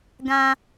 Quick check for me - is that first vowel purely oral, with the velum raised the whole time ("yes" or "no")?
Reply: no